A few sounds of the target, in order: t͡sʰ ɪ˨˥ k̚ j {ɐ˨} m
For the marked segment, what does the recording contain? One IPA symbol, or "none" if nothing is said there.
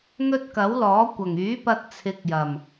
ɐ˨˩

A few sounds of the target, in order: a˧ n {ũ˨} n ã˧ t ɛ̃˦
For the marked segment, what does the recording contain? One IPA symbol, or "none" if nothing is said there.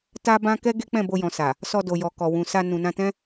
ũ˨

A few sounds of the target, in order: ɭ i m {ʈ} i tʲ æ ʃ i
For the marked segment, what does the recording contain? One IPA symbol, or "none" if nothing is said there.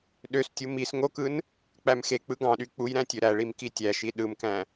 k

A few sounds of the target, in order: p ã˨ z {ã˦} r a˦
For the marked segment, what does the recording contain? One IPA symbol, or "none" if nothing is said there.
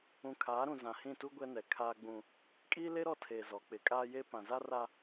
a˦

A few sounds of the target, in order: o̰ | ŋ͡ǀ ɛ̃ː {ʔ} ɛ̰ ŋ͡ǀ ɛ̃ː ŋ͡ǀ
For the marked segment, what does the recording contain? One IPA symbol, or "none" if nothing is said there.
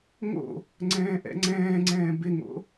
ʔ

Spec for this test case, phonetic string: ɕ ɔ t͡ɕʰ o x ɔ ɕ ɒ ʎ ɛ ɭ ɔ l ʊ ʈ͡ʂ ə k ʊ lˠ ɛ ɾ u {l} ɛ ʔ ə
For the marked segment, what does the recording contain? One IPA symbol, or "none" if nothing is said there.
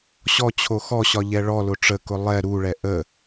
ɭ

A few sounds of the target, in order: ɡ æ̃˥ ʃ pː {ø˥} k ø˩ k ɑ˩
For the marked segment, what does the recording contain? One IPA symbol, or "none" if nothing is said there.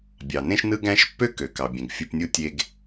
ø˥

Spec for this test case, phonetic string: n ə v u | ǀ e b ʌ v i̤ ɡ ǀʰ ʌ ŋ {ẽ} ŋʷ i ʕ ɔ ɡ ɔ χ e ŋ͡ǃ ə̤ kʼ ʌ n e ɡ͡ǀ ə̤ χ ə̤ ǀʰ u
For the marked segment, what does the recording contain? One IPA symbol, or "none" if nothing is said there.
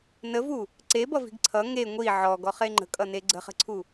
e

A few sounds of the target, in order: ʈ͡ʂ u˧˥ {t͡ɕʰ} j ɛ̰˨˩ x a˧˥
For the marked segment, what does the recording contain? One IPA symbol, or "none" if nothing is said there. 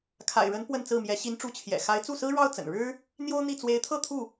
t͡ɕʰ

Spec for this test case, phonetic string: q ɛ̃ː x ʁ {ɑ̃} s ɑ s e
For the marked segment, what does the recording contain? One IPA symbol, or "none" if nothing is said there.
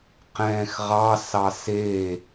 ɑ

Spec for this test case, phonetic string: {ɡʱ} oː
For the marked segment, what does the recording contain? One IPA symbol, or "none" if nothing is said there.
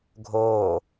ɡʱ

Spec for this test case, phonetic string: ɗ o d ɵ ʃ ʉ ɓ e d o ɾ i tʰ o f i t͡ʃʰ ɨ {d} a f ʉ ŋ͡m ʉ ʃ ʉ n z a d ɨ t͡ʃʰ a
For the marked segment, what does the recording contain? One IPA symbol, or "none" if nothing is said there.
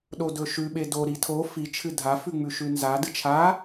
dʱ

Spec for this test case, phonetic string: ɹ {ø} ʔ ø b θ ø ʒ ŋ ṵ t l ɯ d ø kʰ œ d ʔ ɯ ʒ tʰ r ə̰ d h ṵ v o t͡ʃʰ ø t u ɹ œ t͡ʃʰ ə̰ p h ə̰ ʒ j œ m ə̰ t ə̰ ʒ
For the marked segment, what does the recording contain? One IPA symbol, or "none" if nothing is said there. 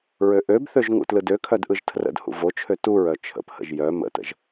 ø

